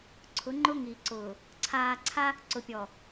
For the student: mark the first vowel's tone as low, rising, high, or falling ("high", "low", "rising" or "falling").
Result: rising